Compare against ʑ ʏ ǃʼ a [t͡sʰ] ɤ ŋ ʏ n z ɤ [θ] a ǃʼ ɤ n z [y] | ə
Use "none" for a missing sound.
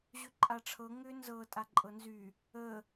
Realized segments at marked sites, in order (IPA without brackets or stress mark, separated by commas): ʈ͡ʂʰ, tʼ, y